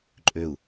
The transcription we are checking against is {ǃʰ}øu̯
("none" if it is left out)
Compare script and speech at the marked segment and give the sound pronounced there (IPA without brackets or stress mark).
ǃʼ